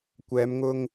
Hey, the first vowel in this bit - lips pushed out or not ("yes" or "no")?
no